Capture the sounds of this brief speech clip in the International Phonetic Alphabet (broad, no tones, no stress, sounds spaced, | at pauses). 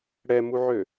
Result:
ɽ ɛ m u ʕ ø